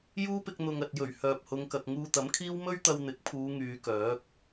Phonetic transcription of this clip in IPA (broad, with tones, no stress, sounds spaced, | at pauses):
j uː˥ p ɪ˧ k̚ n̪ ʊ˨ ŋ ɐ˨ t̚ j ɵ˨˩ ɥ h œː˨ p̚ h ʊ˨˧ ŋ k ɐ˨ k̚ ŋ uː˧ t̪ ɐ˨˥ m kʰ iː˥ w m ɵ˥ ɥ t̪ ɐ˧ w n̪ ɪ˨˥ k̚ pʰ uː˨˧ ŋ yː˨˧ k œː˨˥ k̚